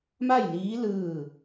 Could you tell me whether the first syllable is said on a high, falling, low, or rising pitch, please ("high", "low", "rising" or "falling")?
falling